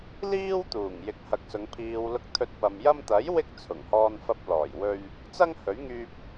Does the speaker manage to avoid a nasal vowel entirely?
yes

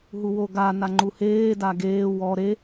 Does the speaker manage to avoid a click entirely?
no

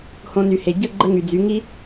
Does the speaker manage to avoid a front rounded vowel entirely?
no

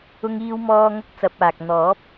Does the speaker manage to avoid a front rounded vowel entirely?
yes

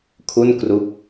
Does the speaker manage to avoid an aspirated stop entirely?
no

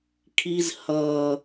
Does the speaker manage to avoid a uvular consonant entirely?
yes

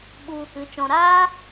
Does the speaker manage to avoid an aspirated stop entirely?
yes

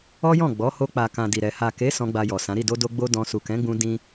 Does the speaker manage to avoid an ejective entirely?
yes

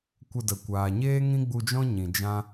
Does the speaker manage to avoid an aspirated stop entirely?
yes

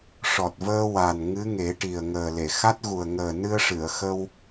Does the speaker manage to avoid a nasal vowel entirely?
yes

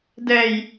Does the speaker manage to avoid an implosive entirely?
yes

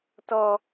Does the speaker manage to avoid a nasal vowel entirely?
yes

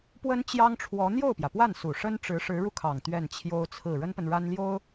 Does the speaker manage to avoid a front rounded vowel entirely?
yes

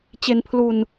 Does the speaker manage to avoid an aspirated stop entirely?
no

